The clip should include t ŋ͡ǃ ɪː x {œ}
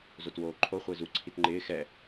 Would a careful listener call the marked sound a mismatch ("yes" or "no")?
yes